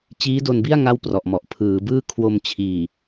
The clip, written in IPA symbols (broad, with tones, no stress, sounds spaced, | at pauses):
t͡ɕ iː˦˥ d o˧ n b i˥˩ a̯ ŋ a˥˩ w p r ɔ˨˩ ʔ m ɔ˨˩ ʔ pʰ ɯː˩˦ b ɯː˥˩ kʰ w o˧ m t͡ɕʰ iː˨˩